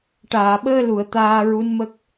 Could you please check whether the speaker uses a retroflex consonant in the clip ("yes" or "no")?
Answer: yes